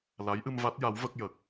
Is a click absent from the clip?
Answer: yes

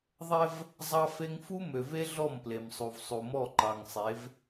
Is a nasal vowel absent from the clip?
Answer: yes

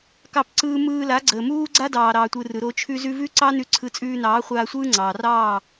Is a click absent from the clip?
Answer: no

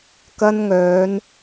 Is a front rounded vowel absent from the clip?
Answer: no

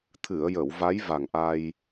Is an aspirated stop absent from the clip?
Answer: no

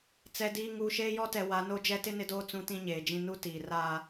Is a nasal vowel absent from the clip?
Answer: no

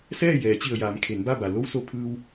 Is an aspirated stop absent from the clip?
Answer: no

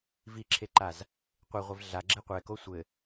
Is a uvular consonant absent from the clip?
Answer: no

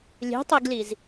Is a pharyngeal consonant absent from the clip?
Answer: yes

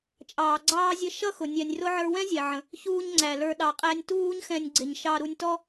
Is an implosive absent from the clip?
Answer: no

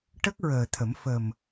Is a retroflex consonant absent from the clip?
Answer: no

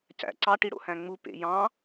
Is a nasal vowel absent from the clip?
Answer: no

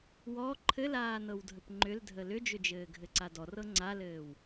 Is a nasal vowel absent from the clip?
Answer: yes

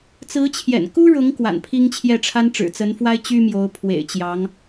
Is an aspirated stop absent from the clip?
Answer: no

